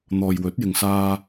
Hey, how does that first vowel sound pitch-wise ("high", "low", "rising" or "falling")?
low